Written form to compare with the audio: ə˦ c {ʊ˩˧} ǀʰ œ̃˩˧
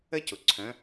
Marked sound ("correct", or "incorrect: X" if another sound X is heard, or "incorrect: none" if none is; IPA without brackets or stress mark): incorrect: ʊ˩